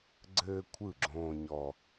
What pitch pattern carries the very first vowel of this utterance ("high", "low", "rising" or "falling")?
high